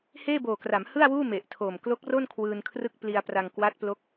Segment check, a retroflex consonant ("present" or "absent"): absent